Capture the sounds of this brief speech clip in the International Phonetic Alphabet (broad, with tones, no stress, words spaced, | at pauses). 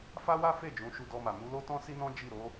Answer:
fa˦wa˦ fe˦˨ d͡ʒũ˨˦ʃu˧dɔ˧ma˨ mu˨˦lo˦ tɔ̃˦si˦nɔ̃˦ d͡ʒi˦˨ɾo˨˦